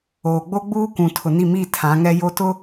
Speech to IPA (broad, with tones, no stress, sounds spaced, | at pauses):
oː˨ ɡ͡b o˦ ɡ͡b uː˦ kʷ ũ˨ tʰ ʊ˨ n i˦˨ m iː˦˨ tʰ ã˨˦ ŋ ɛ˦ j o˦ t ʊ˦